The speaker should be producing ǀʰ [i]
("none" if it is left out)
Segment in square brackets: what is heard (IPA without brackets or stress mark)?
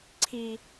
i